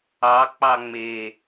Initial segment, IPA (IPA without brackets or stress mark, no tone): ɑ